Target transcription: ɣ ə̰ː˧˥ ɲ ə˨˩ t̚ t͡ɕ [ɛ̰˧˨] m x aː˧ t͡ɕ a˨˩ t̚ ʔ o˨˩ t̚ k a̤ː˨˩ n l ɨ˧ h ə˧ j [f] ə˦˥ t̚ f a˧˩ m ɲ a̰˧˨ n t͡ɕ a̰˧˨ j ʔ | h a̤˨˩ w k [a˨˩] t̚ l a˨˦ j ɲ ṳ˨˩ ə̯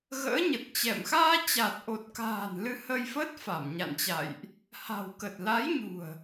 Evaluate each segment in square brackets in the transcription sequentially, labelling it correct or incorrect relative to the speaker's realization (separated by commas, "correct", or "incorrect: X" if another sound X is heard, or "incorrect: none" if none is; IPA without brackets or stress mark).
correct, correct, incorrect: ə˨˩